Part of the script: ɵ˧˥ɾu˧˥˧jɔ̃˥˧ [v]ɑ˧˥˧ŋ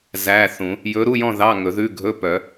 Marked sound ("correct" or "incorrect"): incorrect